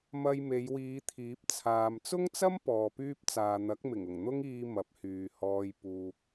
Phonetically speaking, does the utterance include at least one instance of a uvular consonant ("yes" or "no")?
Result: no